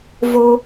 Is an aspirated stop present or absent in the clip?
absent